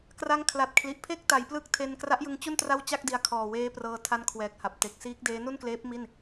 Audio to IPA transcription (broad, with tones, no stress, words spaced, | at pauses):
kra˦˥ŋkʰla˨˩t̚kʰli˨˩ʔ pʰe˥˩k̚ta˩˦jplɯ˦˥k̚ tʰe˧n kra˦˥ʔjɯ˧ŋt͡ɕu˥˩n tra˥˩wt͡ɕa˥˩k̚di˧a̯ kʰɔː˨˩weː˦˥prɤː˧ tʰa˦˥n kʰwɛː˨˩k̚ha˨˩p̚te˨˩k̚ siː˦˥k̚deː˦˥ nu˥˩nkleː˦˥p̚ mi˥˩n